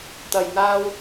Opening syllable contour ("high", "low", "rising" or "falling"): low